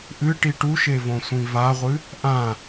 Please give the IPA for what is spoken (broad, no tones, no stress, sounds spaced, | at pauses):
ʔ ɨ ʈ i ʈ u ʃ e v õ sʷ ĩ v a ʁʷ ɨ | ʔ ã